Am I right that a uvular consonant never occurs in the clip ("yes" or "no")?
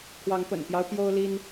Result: yes